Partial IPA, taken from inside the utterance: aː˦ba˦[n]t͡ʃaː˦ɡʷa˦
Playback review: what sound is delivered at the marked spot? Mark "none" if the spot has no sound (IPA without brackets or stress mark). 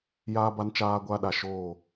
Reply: n